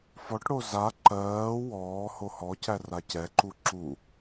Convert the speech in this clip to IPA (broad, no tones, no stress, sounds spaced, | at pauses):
f ɔ ʈ ɽ o z a ǃ ɜː w ɔː h o h ɔ c æ r a c ɛ ǃ u ǁ u